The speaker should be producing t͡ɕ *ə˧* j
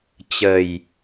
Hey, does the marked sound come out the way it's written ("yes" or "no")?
no